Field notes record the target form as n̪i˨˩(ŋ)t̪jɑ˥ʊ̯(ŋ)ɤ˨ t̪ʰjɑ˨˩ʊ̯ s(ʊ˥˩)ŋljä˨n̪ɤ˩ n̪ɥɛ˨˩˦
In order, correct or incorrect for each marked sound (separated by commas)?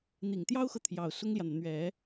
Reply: correct, incorrect, incorrect